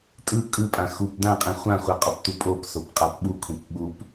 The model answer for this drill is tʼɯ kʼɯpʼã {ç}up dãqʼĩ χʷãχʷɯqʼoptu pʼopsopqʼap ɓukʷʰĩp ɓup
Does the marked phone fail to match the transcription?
yes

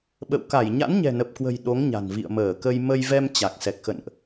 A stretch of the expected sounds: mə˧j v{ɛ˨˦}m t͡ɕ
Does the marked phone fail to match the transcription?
yes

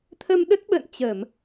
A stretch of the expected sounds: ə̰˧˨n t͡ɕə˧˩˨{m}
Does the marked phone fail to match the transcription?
no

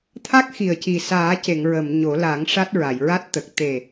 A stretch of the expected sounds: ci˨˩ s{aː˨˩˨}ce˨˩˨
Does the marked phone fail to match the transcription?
yes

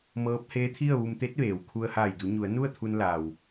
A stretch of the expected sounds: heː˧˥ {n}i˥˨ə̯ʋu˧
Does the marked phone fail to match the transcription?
yes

